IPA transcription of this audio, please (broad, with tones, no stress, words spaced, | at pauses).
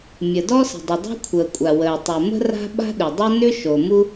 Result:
mʲə˩dɔ˥sə̤˩dˤə˩ dˤo̤˥kʷʰəː˩kʷʼa˩ wəː˩tˤu˩mə̤˥ ra̤˥ ɓa̤˥ɗʏ˩dˤo˥ nʏ˥ ʃo˩mu˥